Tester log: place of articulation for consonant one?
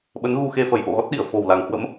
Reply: labial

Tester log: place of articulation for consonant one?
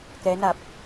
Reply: velar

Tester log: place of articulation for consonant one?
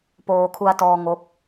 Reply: labial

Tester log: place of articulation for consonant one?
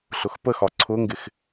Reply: alveolar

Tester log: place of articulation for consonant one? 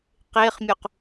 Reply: uvular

